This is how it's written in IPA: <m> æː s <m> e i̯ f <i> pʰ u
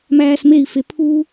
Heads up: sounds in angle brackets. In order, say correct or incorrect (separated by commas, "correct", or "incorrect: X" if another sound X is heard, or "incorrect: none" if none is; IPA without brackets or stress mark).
correct, correct, incorrect: e